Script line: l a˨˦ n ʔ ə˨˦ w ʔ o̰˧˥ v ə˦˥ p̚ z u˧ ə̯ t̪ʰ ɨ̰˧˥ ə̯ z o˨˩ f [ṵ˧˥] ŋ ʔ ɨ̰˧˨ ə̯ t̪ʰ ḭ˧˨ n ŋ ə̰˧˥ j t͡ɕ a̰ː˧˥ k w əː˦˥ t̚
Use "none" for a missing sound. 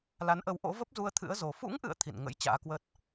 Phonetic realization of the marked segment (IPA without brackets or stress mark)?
ṵ˧˥